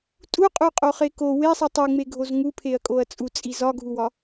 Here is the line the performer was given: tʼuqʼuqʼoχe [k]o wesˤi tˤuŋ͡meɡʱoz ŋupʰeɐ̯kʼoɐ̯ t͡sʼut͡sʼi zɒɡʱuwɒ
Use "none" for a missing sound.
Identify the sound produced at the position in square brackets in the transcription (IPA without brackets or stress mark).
k